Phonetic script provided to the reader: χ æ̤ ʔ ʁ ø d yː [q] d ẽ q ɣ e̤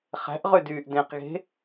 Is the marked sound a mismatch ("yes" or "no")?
yes